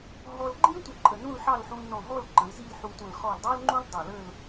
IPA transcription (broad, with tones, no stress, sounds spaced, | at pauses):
ɦ ɔ˥ l ɡ͡ǃ ĩ˥ tʷ ə˧˩ ǃʼ ə˧˩ n ũ˥˧ l ħ ɑ˥˧ l ħ ũ˧ l n ɔ̃˧˩ ɦ ɔ˥˧ l ǃ ə̃˩˧ l z i˥˧ l ħ u˧ tʷ ə̃˧˩ l χ ɔ˧˩ l dˤ ɑ˥ l ŋ͡ǃ ũ˥ l dˤ ɑ˧˩ l ə˥˧ l